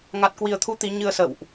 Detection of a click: absent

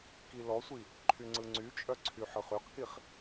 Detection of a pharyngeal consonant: present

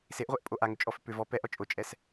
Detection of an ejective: present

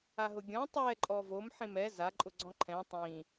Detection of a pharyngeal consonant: present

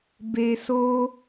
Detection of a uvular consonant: absent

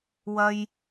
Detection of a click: absent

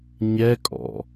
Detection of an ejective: present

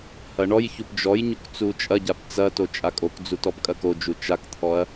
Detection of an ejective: present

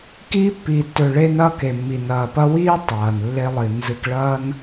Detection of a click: absent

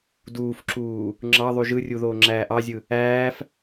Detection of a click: present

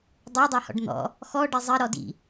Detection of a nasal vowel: absent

